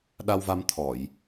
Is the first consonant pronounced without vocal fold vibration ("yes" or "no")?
no